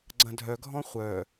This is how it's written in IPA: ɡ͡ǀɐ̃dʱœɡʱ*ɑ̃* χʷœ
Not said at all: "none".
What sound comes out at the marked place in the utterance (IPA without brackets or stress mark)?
ɔ̃